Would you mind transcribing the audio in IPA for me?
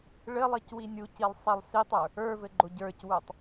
ɭ ɘ lˠ i c w i nʲ u c i lˠ sˤ i lˠ s i tˤ ə˞ | ə˞ v ɘ ɡ͡ǃ o ɟ ə˞ c w ə˞ tˤ

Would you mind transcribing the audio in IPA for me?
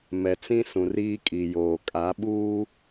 m ɛ˨ t͡s ĩ˦ s ũ˨ r iː˦ kʼ i˨ j oː˨ kʼ a˨˦ ɓ uː˦

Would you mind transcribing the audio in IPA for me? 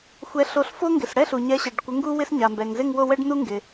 xʷ ɛ˨˥ ɬ o˨˥ ɬ f o˥ ŋ ɡ ɪ˩ s ɽ ɛ˥˧ ɬ u˩ ɲ ɛ˨˥ ɕ ɛ˩ ɖ kʷ ɪ˨˥ ŋ ɡ u˥ w ɪ˥ s ɲ a˩ m b ɛ˩ ŋ z ɪ˥˧ ŋ w o˥˧ w ɛ˥ ɖ n u˥ ŋ ɡ ɪ˩

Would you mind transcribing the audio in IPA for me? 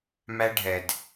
m æ˦ ɖʱ ɛ˨ d

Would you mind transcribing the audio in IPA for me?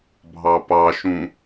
bʱ ɑ p ɑ ʃ ũ

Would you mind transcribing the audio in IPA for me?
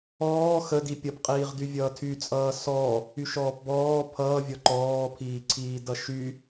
ɔː x ə d i pʲ ʌ p qʼ iː ʁ d y vʲ ʌː tʰ y t͡sʼ ʌː s ɔ | y ʃ ɔː p b ɔː pʰ ʌː vʲ ɔ ǃ ɔː pʰ iː ǀʰ iː d ʌ ʃ y

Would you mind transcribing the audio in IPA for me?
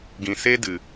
ɡ ĩ˨ s eː˦ d ɨ˨

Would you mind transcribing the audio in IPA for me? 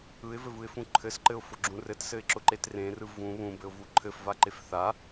ɯ ɪ̯ v ɘ v ɯ ɪ̯ f ũ ǃʰ ɘ s ǃ ɘ ʊ̯ f ʊ ɡ͡ǁ ũ r ɘ t s ɘ ɪ̯ ǁ ʊ ǃ e t r ẽ r ɯ v ũ β ũ b ɘ ʊ̯ v u ǃʰ ɘ f v a ǃ e f θ a

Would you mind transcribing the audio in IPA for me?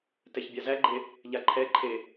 t ɛ ç bʲ a z æ ɡ͡ǃ e | ʎ a ǃʰ ɛ ǃʰ e

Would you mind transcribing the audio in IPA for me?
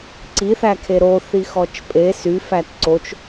ǀ i θ æ kʰ e ɾ o θ i x ɔ t͡ʃ pʼ e s y f æ t ǀ o t͡ʃ

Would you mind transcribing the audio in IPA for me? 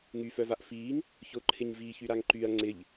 ŋ y f œ v a ʔ f iː ŋ | ç ʊ ǃʰ ɪ ɲ v iː ç y ɾ a ŋ ǃ y ɐ̯ ŋ͡ǀ ɪ ʎ

